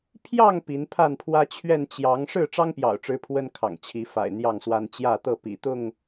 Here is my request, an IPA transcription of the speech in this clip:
pʰjɑ˥˨ŋ pi˨˦npʰa˥˨npʰwä˦ t͡ɕʰɥɛ˥˨n t͡ɕjɑ˨˦ŋ ʂɻ̩˥˨ʈ͡ʂɑ˦ŋpjɑ̰˨˩ʊ̯ʈ͡ʂɻ̩˨˦ pʰwə˦nkʰɑ̰˨˩ŋt͡ɕʰi˨˦fa̰˨˩ɪ̯ n̪jɑ˥˨ŋswa˦n t͡ɕjä˥˨t̪ɤ˥˨ pḭ˨˩t̪ʊ˥˨ŋ

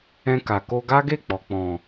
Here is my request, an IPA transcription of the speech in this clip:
ɛ̃˧ka˨ko˧ ɡa˦ɡe˦˨ k͡pɔ˨k͡pɔ̃˨

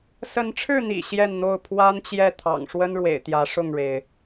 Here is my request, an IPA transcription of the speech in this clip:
sə˨˦nʈ͡ʂʰɻ̩˥˨n̪ḭ˨˩ ɕjɛ˥˨nn̪o˥˨ʊ̯ pʰwa˦nt͡ɕjɛ˥˨ t̪ʰɑ̰˨˩ŋʂwə˦nɻwḛ˨˩ɪ̯ t̪jä˨˦ʂʊ˥˨ŋɻe˩ɪ̯

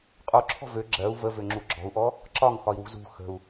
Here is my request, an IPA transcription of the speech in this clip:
qʼoǁʰɔ̤ vø ɡ͡ǁɜu̯ vəvøŋ͡ǁu ɡ͡ǁɔ̤u̯ʔɔ | ǁɒŋxɒi̯wṳ zṳ xə̤u̯

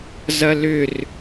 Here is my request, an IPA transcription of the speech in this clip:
zɐlʏr

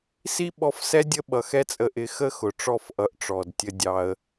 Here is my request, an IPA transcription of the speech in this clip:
si˦ɓɔ˧fsɛ˦ dʲə˦ɓʌ˨ xɛ˦t͡sʼə˧ʔɪ˧ xə˦xʊ˨ ʈ͡ʂɔ˦˨fʔʌ˨˦ʔ ʈ͡ʂɔ˨dtʲə˧ dʲɑ˧ə̯

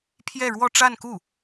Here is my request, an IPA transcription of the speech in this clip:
pʰjɛ˥˧ɻwɔ˥˧ʈ͡ʂa˥˧nku˥˩

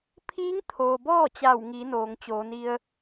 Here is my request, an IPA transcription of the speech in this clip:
pʰiː˧˥ŋt̪ʰoː˩ bɔː˥˨t͡ɕa˧˩wŋi˩˧ noː˩ŋt͡ɕoː˩˧ni˧ə̯

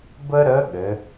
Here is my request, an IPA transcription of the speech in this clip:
bə˥ɾə˧˥ ɠɘ˩˧

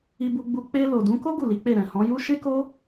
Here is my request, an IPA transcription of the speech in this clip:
i˧bu˧ɡ͡bu˧ k͡pe˧ lo˨dũ˨˦ ko˦ ɡu˦˨li˨˦k͡pe˦˨ ɾɛ̃˨hɔ̃˨˦ju˦ ʃe˦ko˦

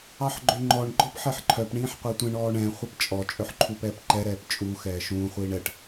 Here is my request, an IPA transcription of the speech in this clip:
ɑħɡ͡ǃøŋ͡ǃɔɳ ɡ͡ǃɔpħɛħǃʰœp ɳĩːħqʷetʷɛ̃ɳ ɔːɳɛ̃ χʷɛpt͡ʃʼɔ t͡ʃʼœħǃʰupɛːpǃɛ ɾɛːpt͡ʃʼu xɛːʃũː χʷiːɳɛʈ

